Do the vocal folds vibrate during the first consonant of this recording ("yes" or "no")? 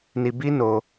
yes